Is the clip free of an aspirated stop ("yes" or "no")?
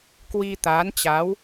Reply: yes